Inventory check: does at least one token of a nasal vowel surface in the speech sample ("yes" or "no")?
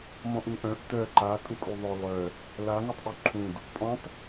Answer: yes